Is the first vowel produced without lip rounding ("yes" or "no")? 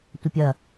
yes